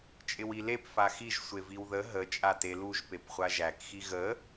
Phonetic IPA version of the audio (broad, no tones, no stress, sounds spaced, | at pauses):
t͡ʃʼ ɪ w i l e p f a x i ʒ sʷ e v i w ð ə ɦ ə t͡ʃʼ a t e l u ʒ p e p χʷ a ʒ æ k x i ɣ ə